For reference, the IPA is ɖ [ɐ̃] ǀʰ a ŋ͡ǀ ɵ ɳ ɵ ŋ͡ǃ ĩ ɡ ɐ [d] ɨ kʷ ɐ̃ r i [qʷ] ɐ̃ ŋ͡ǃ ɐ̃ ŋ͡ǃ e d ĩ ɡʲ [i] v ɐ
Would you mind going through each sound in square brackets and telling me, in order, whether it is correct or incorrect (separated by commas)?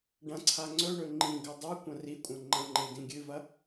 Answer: correct, incorrect, incorrect, incorrect